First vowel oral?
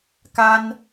yes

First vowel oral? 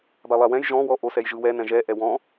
yes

